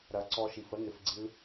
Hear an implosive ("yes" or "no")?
no